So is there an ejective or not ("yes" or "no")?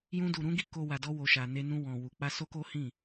no